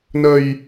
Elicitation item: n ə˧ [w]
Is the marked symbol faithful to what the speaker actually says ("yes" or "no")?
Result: no